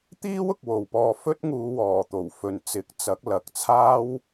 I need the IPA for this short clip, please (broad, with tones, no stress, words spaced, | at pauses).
t̪iː˥wʊ˨k̚ wo˨wpɔː˧ fɵ˥t̚ŋuː˨˧wɔː˨˩ t̪o˨˩wfɵ˨n t͡sɪ˨˥k̚t͡sɐ˨˥k̚lɐ˨k̚t͡sʰaː˥w